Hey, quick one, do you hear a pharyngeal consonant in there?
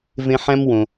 yes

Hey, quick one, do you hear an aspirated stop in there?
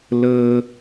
no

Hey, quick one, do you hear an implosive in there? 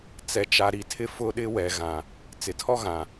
yes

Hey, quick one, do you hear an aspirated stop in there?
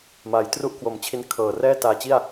yes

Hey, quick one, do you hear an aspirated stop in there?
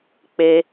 no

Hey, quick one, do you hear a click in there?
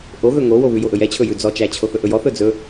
no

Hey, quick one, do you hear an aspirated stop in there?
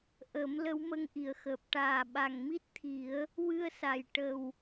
yes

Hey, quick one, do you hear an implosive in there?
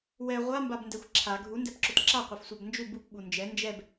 yes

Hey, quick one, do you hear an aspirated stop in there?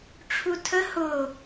yes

